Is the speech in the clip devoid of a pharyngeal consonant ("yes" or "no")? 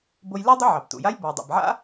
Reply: no